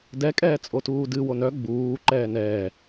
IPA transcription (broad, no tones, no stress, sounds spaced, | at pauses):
d ɛ kʼ ɛː t͡sʼ o t uː d ɨ w o n œ ɡ͡b uː ǃ ɛː n ɛː